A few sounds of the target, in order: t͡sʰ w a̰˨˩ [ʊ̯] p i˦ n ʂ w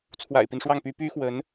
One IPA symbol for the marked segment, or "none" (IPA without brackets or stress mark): ɪ̯